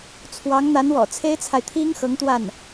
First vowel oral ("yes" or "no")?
yes